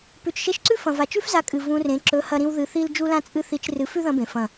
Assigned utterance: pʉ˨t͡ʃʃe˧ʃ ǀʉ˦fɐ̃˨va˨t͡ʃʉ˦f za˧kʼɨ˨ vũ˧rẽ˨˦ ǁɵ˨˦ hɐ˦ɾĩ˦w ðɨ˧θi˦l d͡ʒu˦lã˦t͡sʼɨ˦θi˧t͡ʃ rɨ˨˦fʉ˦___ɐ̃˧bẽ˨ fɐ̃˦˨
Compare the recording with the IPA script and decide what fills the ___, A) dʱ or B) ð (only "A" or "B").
B